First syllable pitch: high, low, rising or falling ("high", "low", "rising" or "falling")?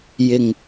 low